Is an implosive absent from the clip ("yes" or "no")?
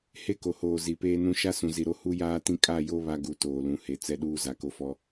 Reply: no